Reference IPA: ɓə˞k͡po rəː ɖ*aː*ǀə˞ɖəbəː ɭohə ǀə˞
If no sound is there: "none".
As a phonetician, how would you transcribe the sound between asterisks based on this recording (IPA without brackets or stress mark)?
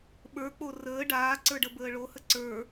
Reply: aː